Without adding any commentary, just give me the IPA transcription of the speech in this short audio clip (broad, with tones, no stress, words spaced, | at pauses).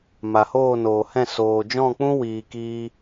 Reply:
ma˨hoː˦˨noː˨hɛ̃˦˨ soː˨d͡ʒɔ̃˦˨k͡pũ˦ wiː˧kiː˦